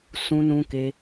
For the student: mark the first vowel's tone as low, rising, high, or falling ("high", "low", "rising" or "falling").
high